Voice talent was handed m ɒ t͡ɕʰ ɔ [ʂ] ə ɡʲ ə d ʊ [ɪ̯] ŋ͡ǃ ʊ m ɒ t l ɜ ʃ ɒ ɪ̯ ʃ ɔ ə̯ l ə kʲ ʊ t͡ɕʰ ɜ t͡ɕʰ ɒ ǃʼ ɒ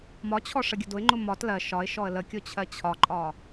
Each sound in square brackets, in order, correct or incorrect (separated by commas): correct, correct